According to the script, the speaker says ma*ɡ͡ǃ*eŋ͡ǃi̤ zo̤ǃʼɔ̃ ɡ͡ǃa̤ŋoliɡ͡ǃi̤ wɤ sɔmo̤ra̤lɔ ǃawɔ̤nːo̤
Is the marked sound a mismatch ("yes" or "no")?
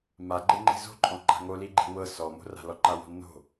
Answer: no